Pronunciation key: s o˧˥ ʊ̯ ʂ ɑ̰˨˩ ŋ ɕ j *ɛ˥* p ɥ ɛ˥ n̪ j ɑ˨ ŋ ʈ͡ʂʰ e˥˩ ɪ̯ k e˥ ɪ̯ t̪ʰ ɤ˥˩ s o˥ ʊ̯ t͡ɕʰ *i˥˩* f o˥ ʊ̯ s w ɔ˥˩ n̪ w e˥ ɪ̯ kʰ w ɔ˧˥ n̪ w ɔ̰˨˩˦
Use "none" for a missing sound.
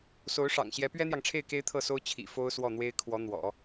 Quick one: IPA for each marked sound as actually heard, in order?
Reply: ɛ˧˥, ḭ˨˩

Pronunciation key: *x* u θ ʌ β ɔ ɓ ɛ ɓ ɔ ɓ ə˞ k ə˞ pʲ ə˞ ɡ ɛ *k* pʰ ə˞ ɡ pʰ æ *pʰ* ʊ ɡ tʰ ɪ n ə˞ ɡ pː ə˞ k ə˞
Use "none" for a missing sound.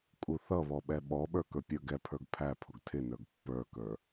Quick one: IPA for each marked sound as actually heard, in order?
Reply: kʼ, none, pʰ

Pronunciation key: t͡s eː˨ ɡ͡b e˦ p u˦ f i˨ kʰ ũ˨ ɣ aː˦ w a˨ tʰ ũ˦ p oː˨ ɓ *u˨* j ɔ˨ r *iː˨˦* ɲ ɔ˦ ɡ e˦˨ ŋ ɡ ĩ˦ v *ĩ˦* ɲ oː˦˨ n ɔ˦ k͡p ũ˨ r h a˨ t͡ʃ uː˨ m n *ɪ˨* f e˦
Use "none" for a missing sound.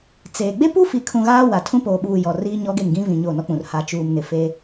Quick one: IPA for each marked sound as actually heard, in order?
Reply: uː˨, iː˦, ĩ˨, ɪ˨

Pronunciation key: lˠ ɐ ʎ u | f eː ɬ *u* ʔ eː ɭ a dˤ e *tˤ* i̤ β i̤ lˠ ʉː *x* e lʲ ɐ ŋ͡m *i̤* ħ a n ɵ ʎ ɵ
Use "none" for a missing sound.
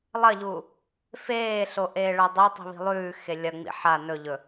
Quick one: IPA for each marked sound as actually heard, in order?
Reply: o, tˤ, x, ḭ

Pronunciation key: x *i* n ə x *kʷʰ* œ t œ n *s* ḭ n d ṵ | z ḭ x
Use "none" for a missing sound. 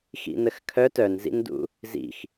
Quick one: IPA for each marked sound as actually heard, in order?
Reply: ḭ, kʰ, z

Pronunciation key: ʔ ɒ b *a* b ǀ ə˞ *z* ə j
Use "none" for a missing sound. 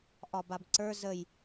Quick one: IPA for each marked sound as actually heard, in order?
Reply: a, z

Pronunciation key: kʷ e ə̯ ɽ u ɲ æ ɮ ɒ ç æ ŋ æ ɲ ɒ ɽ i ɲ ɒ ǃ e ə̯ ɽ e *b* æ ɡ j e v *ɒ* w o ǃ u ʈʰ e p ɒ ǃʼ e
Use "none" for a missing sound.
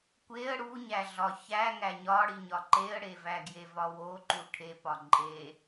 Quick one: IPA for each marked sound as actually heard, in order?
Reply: v, ɒ

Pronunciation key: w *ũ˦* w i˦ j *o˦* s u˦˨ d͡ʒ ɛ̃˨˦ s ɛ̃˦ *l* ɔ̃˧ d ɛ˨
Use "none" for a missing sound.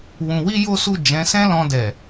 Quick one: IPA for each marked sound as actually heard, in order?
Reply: ũ˧, o˦, l

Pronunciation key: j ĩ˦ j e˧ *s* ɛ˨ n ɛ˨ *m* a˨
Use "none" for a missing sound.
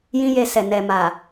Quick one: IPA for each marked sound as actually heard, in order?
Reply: s, m

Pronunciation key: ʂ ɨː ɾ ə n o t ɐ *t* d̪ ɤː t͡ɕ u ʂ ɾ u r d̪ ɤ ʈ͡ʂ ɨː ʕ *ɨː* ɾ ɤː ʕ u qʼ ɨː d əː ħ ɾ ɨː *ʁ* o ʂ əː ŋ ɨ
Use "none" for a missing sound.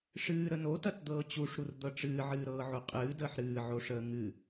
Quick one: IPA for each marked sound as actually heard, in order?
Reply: t, ɨː, ʕ

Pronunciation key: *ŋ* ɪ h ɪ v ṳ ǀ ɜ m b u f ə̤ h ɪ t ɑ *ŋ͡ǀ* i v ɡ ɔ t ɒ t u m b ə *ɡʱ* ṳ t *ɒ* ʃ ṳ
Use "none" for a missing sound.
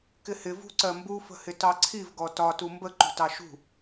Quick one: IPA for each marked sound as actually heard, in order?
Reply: k, ǀʰ, ǃ, ɑ

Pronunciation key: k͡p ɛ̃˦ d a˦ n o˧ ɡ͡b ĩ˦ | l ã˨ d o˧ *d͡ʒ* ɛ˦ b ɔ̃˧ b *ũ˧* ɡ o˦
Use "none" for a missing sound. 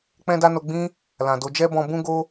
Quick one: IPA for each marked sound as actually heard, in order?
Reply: d͡ʒ, ũ˦

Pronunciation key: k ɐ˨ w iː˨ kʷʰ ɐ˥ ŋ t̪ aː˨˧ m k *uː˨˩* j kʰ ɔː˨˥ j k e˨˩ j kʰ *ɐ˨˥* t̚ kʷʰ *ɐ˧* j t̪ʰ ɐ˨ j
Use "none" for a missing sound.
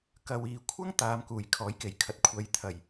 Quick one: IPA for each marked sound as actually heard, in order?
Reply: uː˨˩, ɐ˨˥, ɐ˨˧

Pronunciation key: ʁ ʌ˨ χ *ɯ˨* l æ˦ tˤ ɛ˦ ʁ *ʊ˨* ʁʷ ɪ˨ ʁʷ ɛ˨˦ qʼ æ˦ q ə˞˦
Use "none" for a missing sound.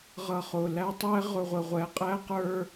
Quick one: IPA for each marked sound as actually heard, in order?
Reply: ʊ˨, ʊ˨

